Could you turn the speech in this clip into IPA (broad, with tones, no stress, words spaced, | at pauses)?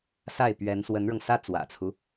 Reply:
sa˥˩ɪ̯ pɥɛ˧˥n swə˧˥nɻɤ˧ŋsä˥ t͡swä̰˨˩t͡sʰu˦